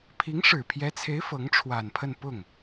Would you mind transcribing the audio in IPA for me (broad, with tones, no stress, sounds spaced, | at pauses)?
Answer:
pʰ i˧˥ ŋ ʂ ɻ̩˨˩ pʰ j ɛ˧˥ t͡sʰ e˧˥ ɪ̯ f ɤ˧˥ ŋ ʈ͡ʂʰ w a˨˩ n pʰ ə˥˧ n p ʊ˥˩ ŋ